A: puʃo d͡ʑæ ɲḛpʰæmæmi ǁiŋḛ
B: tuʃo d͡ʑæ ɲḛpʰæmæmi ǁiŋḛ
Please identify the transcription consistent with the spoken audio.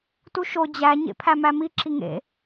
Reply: B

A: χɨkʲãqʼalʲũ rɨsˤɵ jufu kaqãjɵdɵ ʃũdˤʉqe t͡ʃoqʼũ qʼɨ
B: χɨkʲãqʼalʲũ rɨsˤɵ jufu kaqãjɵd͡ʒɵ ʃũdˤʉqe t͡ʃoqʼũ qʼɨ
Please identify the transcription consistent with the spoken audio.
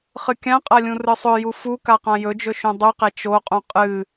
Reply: B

